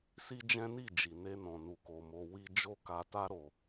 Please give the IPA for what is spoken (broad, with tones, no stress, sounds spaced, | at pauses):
s i˦ d͡ʒ ɛ̃˦ n i˦˨ d͡ʒ i˨ n e˧ n ɔ̃˨ n u˨ k o˨ m o˧ w i˧ d͡ʒ o˦ k a˧ t a˦ ɾ o˧